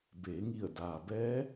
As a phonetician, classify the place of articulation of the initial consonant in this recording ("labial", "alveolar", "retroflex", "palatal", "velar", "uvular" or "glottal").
labial